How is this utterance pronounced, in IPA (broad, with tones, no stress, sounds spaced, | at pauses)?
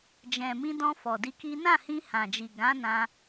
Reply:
d͡ʒ ɛ̃˨ m ĩ˧ d ɔ̃˧ f ɔ˨ d i˧ k i˦ n ã˦˨ h ĩ˧ h ã˨ d͡ʒ i˨ ɡ ã˨˦ n ã˧